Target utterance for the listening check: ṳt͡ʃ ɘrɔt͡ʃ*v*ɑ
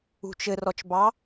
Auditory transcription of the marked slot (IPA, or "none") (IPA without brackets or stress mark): b